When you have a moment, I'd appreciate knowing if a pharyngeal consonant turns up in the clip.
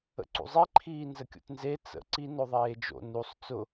no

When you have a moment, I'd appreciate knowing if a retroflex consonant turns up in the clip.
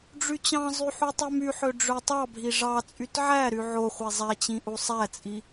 yes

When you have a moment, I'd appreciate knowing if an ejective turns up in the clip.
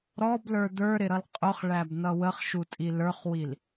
yes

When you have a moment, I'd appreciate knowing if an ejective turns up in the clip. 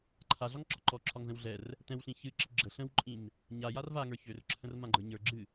yes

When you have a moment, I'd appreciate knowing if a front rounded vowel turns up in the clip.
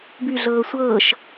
yes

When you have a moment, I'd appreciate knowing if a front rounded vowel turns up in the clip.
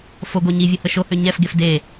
yes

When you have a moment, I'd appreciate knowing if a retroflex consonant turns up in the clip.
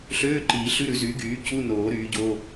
no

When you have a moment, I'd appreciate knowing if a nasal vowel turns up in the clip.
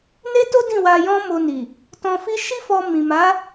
yes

